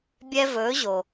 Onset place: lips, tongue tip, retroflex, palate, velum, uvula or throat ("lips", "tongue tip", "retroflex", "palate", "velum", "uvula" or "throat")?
lips